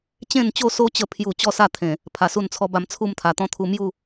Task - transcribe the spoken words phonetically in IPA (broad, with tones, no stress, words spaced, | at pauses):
t͡ɕẽ˥˧nt͡ɕo˥˧so˦t͡ɕə˧ pʰju˥˧ t͡ɕɔ˥˧sa˥˧t̪ʰẽ˨˩ | pʰa˧su˥˧nt͡sʰɔ˦ba˧m t͡sʰu˥˧mt̪ʰa˨˩t̪ɔ̃˦t̪ʰu˧ mju˥˧